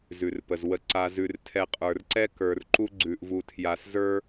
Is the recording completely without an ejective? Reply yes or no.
no